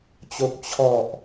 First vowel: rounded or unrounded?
rounded